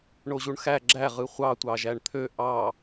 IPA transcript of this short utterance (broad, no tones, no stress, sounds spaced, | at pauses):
ɳ o ʑ u ɳ x æ ɡ͡ǁ æ ʁ ɯ χʷ ɑ tʷ ɑ ʒ æ ɳ t̪ʰ ø ʔ ɑ